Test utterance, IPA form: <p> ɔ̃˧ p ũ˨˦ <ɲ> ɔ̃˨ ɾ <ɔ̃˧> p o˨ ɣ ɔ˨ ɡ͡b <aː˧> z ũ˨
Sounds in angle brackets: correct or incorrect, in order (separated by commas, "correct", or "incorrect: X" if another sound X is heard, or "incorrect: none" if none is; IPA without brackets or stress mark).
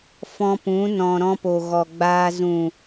incorrect: f, incorrect: n, correct, correct